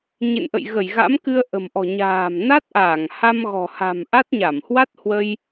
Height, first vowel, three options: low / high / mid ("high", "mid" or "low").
mid